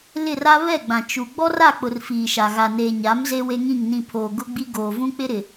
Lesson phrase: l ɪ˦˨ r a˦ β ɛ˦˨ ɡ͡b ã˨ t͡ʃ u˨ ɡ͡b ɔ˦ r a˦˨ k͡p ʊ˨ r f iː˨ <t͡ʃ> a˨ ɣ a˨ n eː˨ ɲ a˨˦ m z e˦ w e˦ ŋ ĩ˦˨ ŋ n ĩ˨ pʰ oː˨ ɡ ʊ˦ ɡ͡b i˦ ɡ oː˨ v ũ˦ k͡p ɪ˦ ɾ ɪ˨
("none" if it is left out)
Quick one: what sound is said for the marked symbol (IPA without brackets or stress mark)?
ʃ